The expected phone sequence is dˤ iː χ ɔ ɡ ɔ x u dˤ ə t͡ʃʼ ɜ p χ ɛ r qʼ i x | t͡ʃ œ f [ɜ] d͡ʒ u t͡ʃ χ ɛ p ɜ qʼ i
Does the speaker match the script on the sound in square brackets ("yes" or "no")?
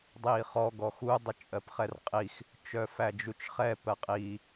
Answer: no